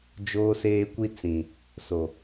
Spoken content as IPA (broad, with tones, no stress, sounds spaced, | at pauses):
d͡ʒ oː˦ s eː˦ kʷ i˦ t͡s ĩ˨ | s o˨